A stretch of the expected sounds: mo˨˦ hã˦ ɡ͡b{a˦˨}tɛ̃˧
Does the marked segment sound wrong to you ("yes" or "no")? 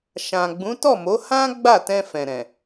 no